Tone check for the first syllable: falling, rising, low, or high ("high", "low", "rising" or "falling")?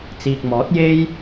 low